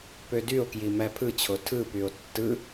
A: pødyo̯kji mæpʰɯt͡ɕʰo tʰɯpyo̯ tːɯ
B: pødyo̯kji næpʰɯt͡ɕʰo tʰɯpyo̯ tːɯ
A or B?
A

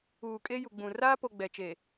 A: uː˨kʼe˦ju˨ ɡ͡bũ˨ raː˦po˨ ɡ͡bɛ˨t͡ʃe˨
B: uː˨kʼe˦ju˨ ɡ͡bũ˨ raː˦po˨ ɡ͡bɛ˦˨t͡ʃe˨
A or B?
A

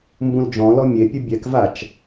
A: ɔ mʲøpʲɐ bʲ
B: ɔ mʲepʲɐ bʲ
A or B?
B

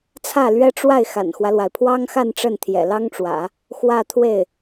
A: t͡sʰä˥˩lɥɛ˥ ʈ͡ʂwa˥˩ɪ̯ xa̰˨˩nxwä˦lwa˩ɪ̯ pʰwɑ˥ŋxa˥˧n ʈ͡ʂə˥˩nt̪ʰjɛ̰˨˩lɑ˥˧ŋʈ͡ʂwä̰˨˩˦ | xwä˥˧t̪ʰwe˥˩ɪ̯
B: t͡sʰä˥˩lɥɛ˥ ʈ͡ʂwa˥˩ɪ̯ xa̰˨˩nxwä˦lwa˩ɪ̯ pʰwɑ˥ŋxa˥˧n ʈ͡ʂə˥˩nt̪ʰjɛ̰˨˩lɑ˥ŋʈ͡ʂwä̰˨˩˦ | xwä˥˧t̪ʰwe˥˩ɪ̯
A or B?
B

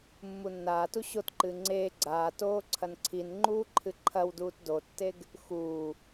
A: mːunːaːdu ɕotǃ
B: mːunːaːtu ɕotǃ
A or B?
B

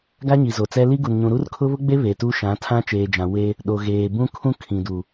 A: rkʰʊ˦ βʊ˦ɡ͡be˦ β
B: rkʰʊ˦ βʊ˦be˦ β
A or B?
A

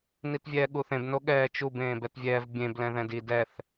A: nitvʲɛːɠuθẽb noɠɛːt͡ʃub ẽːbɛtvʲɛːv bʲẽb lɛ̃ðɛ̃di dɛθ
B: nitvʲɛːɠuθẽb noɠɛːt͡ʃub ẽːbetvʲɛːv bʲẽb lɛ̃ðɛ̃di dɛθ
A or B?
A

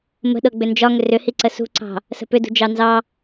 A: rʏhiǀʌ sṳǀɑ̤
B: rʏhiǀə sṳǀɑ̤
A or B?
B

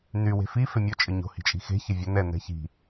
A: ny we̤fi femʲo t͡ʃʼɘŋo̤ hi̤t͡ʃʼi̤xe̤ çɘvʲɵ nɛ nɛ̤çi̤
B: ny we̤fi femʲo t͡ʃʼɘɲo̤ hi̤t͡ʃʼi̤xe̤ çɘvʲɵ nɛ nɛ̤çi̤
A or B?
B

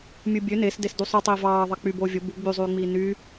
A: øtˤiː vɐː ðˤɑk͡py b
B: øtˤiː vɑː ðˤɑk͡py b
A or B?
B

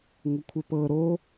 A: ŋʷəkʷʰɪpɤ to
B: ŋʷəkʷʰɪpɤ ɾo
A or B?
B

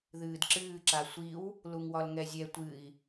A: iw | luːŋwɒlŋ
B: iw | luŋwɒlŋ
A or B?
B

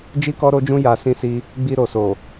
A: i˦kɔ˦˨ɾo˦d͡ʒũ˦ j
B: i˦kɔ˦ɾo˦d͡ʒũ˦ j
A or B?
B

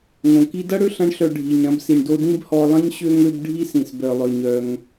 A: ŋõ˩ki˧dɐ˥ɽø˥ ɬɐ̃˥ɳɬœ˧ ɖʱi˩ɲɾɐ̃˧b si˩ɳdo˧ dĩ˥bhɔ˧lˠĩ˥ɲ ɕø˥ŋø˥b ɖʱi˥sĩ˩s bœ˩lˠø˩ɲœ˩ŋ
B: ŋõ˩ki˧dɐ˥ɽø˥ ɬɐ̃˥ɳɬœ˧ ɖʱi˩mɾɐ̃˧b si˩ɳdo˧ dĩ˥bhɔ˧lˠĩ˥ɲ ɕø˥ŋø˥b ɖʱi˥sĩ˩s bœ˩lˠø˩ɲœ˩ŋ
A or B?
A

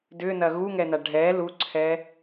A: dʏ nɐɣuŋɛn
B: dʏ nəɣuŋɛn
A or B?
A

